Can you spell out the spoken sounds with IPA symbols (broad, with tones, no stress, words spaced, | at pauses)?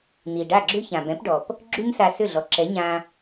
n̪i˩ɖa˥˩ɡ͡ǁʏ˥ çã˩bɛ̃˩˥pɖɔ˩p | ɡ͡ǁy˥ɲsa˧sʏ˥˩ɮɔ˩ ǁɛ˩˥ɲã˧